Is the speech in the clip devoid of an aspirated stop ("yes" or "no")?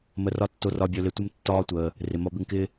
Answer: yes